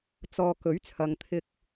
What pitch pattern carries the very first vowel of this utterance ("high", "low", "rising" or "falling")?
low